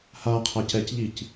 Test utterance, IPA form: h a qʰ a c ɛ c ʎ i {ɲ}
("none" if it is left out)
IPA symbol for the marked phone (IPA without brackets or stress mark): c